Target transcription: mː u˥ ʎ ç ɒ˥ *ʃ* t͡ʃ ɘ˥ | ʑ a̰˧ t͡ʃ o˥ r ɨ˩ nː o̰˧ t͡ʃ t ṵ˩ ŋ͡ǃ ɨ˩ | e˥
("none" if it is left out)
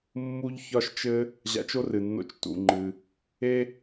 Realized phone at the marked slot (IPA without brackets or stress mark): ʃ